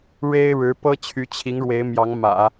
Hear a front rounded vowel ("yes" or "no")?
yes